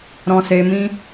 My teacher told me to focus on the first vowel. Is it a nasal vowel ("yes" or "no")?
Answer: yes